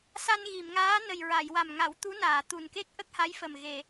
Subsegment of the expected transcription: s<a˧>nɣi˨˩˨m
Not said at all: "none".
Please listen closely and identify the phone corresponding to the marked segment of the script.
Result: a˧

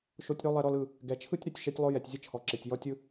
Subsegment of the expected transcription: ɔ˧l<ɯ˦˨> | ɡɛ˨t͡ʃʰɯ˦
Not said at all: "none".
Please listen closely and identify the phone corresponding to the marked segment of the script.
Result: ɯ˦˨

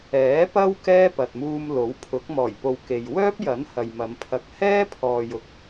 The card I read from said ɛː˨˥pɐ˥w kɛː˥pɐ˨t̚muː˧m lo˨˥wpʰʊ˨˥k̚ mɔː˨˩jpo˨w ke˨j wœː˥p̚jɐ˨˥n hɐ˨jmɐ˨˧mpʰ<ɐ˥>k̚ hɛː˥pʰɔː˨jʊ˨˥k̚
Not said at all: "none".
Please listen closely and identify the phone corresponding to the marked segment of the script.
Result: ɐ˧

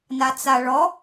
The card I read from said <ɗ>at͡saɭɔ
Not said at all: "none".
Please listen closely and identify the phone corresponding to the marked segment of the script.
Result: n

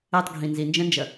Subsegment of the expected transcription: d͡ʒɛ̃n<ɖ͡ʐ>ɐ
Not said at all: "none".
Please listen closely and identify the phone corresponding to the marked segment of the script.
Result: d͡ʒ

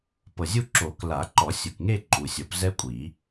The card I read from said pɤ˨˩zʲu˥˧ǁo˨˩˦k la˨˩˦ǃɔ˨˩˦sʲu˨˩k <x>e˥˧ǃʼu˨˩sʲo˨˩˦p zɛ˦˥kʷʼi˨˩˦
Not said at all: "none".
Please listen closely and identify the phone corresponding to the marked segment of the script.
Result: ŋ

